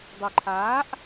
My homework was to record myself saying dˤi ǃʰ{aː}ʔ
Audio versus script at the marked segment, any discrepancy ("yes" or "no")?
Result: no